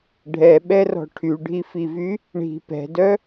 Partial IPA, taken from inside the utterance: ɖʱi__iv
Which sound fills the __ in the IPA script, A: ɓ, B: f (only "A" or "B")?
B